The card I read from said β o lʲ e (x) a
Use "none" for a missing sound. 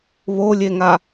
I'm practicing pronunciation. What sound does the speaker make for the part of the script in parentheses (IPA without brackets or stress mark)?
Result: ŋ